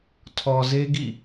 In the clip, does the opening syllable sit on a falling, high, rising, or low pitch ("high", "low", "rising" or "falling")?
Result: low